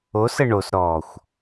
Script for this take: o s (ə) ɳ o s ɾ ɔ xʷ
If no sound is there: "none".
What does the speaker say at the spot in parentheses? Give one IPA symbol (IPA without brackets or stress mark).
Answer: ə